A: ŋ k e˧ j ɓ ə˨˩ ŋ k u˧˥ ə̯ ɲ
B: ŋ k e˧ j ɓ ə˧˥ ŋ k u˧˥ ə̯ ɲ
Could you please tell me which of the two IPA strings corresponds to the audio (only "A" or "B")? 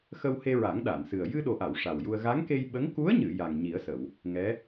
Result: B